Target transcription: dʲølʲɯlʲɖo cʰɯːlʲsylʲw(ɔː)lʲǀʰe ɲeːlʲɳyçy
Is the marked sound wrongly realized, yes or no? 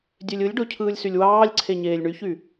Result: yes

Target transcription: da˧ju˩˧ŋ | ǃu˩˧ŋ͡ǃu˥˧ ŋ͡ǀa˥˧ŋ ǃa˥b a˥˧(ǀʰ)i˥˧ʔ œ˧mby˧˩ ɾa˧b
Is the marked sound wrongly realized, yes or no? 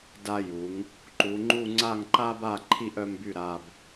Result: yes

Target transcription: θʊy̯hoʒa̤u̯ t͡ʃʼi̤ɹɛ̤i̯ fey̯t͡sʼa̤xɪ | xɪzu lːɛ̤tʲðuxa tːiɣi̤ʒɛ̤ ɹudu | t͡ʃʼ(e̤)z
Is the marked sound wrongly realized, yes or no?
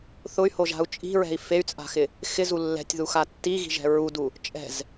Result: yes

